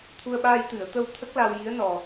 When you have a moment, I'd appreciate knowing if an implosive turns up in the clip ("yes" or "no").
yes